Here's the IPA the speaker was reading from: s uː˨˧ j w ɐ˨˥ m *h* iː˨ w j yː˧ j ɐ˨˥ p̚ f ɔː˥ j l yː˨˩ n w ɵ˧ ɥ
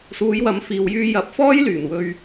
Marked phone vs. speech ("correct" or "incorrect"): incorrect